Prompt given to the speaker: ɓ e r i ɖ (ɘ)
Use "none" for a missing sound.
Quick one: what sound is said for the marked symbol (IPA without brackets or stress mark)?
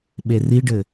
ɘ